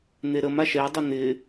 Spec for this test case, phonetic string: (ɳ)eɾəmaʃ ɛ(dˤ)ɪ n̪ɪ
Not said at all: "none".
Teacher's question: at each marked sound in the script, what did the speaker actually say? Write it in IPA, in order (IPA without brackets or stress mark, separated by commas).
n̪, dˤ